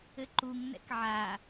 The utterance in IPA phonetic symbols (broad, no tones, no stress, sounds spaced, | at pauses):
ɘ ǃ u ŋ n ɛ̰ k ʕ a